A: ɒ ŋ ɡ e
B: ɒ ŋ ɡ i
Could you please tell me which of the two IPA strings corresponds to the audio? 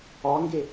A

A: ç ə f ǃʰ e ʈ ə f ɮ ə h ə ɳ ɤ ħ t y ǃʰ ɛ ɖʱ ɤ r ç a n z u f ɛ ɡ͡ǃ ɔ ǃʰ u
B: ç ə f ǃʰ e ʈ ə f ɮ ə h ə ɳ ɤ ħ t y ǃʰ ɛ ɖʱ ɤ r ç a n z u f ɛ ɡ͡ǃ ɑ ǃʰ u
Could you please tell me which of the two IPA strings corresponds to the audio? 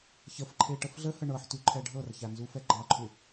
B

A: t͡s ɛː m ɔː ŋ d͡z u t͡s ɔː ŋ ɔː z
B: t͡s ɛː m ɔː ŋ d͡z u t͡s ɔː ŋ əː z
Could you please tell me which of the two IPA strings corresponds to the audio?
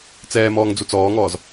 A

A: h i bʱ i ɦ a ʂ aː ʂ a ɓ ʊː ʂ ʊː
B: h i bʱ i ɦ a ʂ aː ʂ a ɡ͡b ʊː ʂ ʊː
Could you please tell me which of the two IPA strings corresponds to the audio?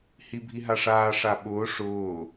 A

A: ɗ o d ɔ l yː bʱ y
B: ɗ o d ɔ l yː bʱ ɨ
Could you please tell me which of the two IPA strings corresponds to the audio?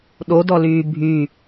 A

